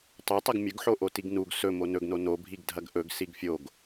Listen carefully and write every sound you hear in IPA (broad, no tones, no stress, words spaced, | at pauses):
tˤɵ tˤɐɡmʲɵɡħo ʔotiɡnuɡ sɵmo nɵɡno nobʱiɡ dʱɐɡʔɵɡ siɡfʲoɡ